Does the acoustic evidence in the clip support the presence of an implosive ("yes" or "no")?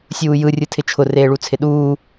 yes